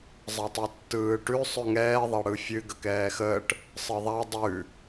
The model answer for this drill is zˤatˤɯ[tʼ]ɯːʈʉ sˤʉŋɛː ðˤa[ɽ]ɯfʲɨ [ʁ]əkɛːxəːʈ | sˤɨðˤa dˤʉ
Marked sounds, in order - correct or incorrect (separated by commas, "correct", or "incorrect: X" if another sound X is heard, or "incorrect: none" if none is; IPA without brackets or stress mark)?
incorrect: tː, correct, incorrect: ɡ